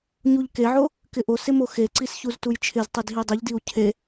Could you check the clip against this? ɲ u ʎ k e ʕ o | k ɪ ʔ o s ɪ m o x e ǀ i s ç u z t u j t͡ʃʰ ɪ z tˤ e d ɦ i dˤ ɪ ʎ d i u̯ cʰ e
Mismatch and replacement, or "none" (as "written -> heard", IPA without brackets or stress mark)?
none